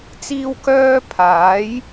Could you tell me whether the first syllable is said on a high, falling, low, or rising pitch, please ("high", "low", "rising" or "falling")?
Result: high